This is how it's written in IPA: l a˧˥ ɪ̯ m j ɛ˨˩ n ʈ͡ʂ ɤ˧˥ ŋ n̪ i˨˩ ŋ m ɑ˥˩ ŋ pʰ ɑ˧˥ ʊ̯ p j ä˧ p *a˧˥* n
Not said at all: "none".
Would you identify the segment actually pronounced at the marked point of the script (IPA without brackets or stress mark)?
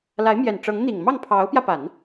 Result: a˨˩˦